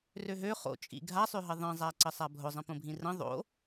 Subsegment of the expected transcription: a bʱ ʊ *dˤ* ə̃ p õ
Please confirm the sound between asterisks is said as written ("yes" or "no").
no